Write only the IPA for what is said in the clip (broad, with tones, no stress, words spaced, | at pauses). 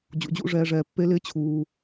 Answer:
d͡ʑṵ˨d͡ʑṵ˧ʐɛː˧ʐɛː˨ pːe˧lɪː˧t͡ɕʰuː˨